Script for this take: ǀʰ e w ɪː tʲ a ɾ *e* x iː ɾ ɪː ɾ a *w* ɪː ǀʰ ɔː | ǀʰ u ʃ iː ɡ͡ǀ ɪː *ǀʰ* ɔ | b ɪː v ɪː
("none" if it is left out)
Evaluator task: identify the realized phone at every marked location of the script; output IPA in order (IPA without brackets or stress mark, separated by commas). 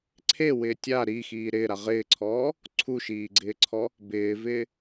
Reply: i, ʁ, ǀʰ